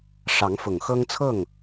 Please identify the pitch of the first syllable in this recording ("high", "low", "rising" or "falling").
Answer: rising